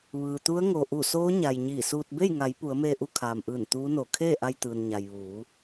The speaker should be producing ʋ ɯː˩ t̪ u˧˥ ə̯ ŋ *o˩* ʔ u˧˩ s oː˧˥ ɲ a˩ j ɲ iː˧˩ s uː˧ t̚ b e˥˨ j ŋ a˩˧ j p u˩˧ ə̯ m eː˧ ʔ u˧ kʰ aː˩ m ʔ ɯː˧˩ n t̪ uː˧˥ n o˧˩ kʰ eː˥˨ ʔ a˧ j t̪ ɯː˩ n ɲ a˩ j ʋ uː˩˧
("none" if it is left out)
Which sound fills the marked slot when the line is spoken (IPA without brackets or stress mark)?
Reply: o˩